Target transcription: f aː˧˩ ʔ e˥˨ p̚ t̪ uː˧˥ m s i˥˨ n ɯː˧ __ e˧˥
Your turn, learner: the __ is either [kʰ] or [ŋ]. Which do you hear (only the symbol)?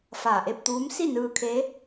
kʰ